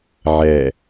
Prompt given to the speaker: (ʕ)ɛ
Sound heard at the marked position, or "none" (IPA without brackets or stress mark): ʕ